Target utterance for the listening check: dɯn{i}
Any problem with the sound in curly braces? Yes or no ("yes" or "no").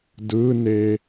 yes